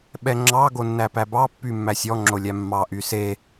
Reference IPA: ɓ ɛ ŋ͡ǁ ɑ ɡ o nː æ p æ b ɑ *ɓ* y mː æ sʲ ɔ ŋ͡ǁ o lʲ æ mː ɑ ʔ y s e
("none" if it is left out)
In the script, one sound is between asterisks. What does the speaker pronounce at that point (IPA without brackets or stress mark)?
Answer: pː